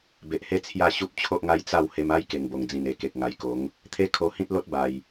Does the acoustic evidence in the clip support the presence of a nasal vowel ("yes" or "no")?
yes